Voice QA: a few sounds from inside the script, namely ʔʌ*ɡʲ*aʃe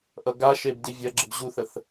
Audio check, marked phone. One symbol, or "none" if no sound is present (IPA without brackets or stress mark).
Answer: ɡ